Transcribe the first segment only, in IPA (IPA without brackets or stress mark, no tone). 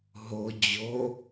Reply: ɦ